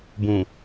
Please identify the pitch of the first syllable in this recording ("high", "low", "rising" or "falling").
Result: low